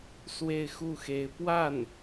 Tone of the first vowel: falling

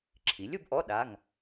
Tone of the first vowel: rising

